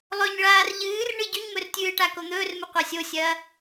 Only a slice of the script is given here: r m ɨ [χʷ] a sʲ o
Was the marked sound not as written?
yes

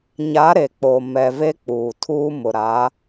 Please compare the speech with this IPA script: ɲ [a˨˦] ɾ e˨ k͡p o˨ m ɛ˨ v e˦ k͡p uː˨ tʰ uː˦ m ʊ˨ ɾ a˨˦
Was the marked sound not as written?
no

